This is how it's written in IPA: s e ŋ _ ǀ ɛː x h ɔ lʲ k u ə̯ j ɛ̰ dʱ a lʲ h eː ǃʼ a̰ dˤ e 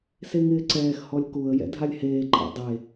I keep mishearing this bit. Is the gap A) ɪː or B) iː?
A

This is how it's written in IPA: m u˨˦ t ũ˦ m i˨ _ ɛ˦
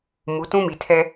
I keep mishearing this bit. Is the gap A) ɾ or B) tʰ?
B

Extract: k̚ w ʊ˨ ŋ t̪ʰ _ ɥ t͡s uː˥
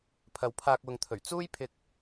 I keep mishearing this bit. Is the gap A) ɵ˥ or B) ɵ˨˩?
B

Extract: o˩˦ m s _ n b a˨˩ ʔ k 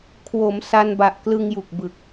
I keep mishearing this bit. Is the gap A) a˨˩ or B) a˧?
B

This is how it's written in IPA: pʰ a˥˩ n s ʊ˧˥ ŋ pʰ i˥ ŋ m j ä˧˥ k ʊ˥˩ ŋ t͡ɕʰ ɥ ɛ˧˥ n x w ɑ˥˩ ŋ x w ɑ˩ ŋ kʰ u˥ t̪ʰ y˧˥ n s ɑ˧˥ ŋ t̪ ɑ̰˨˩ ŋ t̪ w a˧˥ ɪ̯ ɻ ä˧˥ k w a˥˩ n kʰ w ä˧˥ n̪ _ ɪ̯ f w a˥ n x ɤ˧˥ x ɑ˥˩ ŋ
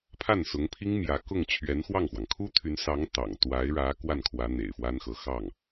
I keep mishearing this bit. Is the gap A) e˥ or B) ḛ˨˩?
B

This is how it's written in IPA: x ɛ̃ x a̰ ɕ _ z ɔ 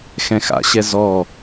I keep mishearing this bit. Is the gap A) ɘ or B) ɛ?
B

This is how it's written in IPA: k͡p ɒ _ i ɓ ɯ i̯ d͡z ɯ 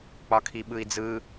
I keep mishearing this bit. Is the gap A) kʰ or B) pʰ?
A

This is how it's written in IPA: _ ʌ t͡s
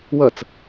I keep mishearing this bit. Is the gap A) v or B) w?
B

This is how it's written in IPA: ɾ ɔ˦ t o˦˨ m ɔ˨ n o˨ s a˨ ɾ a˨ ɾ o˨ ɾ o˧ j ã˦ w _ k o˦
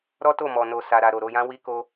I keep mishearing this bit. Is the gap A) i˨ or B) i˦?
B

